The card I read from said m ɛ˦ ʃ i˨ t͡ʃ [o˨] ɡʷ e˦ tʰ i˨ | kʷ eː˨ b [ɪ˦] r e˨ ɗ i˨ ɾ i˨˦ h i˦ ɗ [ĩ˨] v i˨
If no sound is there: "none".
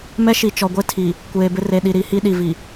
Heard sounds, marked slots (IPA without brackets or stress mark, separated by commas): ɔ˨, ɪ˦, i˨